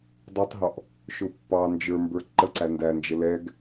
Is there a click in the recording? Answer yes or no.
yes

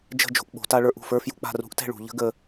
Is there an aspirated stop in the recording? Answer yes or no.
no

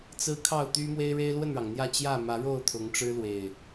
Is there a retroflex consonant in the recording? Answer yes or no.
yes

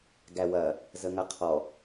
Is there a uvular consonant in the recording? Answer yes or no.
yes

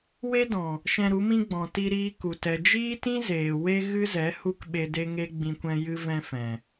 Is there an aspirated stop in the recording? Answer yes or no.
no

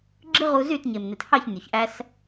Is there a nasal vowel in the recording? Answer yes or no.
no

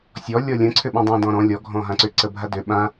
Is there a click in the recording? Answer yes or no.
yes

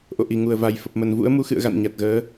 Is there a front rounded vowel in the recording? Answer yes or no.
no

